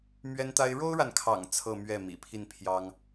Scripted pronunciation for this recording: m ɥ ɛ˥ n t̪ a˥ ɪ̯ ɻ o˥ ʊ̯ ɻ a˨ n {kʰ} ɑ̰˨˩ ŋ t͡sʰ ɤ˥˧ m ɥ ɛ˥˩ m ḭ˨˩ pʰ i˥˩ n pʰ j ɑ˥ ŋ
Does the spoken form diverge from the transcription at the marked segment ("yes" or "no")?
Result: no